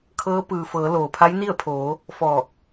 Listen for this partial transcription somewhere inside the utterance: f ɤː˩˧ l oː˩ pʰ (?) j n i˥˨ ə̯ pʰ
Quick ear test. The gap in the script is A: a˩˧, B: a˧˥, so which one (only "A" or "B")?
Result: B